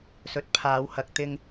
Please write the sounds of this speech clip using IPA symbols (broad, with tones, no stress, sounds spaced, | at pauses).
s ɵ˨ t̚ pʰ aː˨˧ w h ɐ˨ k̚ t̪ ɪ˧ ŋ